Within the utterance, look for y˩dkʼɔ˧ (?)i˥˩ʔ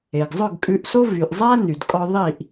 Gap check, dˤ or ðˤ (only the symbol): ðˤ